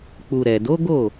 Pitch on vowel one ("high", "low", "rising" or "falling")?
low